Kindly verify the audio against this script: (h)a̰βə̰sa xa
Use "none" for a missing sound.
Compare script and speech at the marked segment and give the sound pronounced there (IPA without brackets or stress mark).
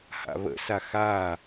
h